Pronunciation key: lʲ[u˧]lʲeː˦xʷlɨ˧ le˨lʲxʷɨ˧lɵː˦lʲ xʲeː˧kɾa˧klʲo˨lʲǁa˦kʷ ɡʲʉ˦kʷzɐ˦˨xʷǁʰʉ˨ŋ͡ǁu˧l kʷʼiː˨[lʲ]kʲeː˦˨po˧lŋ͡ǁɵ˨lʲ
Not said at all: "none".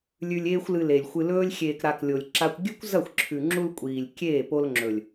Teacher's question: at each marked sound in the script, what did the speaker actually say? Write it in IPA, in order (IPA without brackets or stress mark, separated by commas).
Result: ʉ˧, lʲ